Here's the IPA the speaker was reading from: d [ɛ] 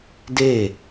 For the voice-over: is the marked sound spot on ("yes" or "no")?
no